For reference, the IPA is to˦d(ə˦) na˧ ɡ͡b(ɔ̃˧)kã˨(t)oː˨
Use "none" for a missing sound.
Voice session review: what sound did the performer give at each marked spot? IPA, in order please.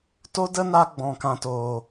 ə˦, ɔ̃˨, t

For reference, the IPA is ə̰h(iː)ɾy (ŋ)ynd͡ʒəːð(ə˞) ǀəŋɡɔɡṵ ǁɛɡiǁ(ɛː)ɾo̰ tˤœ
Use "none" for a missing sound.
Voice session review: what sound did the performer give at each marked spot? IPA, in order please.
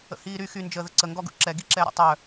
iː, x, ə, ɛː

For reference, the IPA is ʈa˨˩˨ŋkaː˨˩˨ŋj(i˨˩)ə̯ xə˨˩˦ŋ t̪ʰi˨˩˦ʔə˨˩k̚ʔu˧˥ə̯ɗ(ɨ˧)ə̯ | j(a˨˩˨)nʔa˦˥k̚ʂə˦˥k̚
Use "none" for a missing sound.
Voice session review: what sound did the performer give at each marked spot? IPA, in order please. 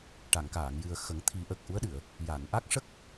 ɨ˨˩, ɨ˨˩˨, a˨˩˨

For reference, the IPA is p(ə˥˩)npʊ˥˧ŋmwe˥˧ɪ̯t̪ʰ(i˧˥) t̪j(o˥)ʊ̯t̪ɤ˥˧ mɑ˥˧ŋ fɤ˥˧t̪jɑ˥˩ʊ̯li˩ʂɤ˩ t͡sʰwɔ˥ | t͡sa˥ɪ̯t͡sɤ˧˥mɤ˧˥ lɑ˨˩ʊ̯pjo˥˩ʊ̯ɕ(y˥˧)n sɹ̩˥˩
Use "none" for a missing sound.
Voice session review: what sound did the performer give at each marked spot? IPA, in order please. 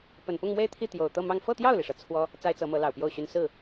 ə˨˩, i˥˩, o˨˩, y˥

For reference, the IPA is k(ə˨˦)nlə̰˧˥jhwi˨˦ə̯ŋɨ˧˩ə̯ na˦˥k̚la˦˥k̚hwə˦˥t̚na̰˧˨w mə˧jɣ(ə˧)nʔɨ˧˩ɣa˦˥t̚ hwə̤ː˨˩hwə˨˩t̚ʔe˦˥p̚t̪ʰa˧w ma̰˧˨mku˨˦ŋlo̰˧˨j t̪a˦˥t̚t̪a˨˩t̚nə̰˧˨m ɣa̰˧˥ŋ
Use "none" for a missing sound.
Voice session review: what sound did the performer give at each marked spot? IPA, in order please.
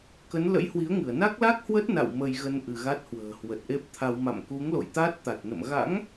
ə˨˦, ə˧

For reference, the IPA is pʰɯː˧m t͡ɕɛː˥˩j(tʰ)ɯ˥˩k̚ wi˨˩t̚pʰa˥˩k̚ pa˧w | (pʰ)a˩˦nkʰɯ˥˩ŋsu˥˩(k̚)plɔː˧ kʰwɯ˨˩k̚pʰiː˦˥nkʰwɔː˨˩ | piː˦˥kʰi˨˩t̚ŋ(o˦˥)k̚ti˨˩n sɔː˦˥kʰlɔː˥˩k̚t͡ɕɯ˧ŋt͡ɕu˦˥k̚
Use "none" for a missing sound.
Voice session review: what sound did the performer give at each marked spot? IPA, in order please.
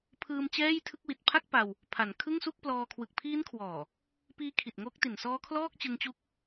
tʰ, pʰ, k̚, o˦˥

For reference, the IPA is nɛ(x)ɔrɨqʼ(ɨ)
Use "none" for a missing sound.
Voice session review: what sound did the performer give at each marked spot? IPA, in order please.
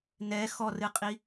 x, i

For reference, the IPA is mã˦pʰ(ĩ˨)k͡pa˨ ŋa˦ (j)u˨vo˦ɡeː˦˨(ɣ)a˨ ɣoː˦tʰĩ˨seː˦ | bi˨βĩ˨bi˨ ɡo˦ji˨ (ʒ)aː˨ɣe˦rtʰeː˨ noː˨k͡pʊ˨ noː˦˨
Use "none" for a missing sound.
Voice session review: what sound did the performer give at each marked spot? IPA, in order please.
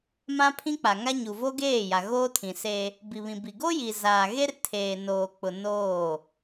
ĩ˦, ɲ, j, z

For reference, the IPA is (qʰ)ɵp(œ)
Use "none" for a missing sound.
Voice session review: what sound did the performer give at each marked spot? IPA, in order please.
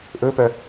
ʔ, œ

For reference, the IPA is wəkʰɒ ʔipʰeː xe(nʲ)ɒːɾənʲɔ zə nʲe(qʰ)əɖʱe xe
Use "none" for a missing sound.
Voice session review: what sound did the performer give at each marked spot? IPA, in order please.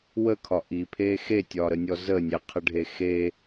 tʲ, qʰ

